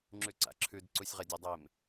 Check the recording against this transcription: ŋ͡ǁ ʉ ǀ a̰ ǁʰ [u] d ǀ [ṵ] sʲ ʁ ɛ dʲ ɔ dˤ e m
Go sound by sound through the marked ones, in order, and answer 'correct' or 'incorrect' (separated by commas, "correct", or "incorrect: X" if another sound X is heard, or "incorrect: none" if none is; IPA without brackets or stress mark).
incorrect: ʉ, incorrect: u